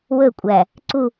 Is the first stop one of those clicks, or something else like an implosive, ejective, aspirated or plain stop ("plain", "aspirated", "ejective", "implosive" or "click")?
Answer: ejective